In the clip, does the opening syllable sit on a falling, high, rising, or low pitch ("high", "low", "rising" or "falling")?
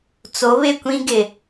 rising